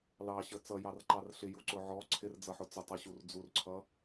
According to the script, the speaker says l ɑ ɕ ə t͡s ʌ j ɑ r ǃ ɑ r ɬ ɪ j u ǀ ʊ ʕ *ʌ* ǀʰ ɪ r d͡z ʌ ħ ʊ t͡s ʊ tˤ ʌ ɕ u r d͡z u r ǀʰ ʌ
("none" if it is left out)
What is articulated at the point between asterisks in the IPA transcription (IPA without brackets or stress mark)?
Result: ɔ